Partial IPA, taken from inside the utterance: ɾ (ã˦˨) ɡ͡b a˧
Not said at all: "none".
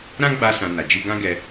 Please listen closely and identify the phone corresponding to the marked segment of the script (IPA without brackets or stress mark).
ã˦